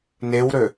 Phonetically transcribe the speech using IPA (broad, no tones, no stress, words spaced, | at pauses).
newɾø